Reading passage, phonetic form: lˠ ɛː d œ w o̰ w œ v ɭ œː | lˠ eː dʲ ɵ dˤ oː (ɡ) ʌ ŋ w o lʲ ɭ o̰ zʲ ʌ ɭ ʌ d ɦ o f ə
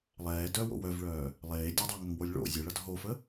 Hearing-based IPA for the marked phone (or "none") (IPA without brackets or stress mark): ŋ